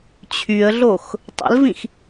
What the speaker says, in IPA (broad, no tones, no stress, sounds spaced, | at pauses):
t͡ɕʰ y ə̯ ɮ o x | tˤ ə̰ l v ĩ x